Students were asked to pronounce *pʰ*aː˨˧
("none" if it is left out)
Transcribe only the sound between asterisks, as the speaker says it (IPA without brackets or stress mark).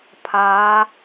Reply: pʰ